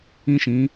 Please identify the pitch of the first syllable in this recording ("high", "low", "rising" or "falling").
high